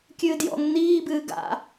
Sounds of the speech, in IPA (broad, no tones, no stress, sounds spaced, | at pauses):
kʲ ɨː d j ɔ̰ ŋ n̪ iː b ɨː ɡ a̰